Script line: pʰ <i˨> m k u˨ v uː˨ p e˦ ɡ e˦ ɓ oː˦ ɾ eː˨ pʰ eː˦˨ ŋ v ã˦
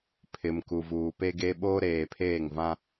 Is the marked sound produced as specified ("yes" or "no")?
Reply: no